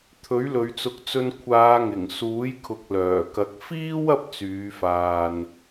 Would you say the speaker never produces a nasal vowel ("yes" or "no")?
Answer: yes